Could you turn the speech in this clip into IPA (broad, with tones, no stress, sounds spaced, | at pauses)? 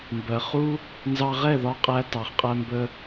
m b ɜ˨ χ u˦ | n z ɑ˧ ʁ ɛ˦˨ ð ɒ˧ qʼ æ˧ t ɑ˨ χ qʼ æ˧ m b ə˧